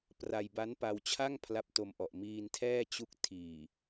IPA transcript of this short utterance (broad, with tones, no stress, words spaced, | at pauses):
pra˧jba˦˥npa˧wt͡ɕʰa˥˩ŋ pʰla˦˥p̚to˧mʔɔ˨˩ʔ miː˧ntʰɛː˥˩ t͡ɕu˦˥k̚ tʰiː˨˩